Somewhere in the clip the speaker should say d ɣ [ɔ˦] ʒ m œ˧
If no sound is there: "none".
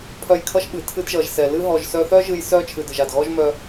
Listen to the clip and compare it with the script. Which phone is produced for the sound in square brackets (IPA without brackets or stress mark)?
ɔ˦